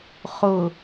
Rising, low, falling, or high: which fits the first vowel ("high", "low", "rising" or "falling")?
low